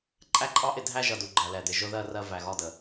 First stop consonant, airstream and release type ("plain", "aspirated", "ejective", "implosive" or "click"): click